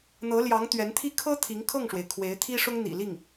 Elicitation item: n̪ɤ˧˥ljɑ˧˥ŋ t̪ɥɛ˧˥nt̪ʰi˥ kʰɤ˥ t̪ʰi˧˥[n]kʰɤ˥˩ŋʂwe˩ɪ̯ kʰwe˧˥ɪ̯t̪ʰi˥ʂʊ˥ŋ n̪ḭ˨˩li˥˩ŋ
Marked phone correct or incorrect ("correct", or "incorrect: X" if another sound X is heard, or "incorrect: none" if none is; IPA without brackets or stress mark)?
incorrect: ŋ